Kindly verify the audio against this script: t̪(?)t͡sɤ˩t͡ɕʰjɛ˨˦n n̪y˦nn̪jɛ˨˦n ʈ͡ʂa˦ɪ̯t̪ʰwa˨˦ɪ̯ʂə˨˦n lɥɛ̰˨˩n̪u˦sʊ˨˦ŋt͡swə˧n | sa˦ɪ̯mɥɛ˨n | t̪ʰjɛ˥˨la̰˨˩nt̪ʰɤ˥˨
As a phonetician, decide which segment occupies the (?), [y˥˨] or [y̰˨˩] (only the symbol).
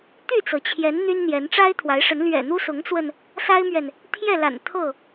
y˥˨